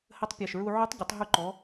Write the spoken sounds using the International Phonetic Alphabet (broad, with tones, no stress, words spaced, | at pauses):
hə˧˥tˤpʲɐ˨˩ʃɹu˧ ʕu˧˥tˤɟə˩˧tˤ ɦu˧ǃɔ˩˧